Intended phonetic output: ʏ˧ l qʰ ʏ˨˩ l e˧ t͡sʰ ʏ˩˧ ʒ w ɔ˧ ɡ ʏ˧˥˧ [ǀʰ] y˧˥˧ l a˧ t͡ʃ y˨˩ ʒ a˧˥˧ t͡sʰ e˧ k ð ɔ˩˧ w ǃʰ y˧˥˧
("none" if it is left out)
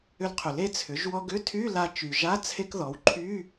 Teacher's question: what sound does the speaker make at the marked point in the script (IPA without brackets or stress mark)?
tʰ